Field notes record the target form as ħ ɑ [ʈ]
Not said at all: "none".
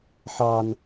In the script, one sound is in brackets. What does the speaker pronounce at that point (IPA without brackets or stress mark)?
n